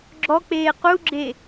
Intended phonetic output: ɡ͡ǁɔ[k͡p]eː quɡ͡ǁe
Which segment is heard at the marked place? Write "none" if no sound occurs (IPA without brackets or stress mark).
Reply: k͡p